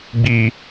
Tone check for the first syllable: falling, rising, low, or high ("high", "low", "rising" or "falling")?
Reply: low